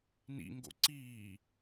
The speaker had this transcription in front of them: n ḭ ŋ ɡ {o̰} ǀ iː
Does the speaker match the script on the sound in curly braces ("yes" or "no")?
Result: yes